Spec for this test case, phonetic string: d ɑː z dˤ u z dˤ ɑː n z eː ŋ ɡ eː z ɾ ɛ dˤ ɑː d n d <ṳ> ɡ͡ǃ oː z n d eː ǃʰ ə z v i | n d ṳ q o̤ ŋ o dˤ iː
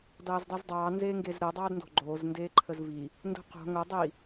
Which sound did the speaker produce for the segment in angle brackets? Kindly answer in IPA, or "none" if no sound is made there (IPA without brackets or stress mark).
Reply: o̤